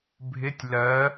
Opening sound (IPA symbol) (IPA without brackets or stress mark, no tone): bʱ